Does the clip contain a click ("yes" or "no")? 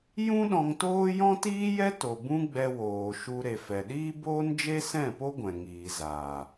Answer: no